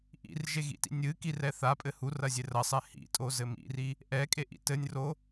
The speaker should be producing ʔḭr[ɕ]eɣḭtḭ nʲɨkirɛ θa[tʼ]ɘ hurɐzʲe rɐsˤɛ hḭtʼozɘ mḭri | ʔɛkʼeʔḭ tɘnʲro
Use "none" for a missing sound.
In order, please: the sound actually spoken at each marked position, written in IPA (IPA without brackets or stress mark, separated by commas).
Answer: ʒ, pʼ